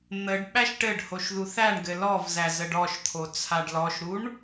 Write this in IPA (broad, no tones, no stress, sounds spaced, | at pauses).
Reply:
n̪ ə ɖ ɓ æ ʃ ʈ ɘ ɖ h o ʃ ð u θ æ ɳ ɡ ɘ l ɔ v z æ z ə ɖ ɔ ʃ t̪ʰ o t͡sʰ a ɖ l ɔ ʃ ɾ u ɳ